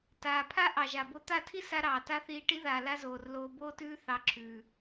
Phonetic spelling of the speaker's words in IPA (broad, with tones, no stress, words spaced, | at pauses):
taː˨pʰa˦ ʔɑ˨ʒa˨bo˧ t̪a˦˨tʰi˦ sa˦ɾɑː˨ta˦ θiː˧ʈi˦ðaː˨ la˦zoː˨rloː˧ boː˦tʉː˦ θɑ˧ ǁʰʉː˨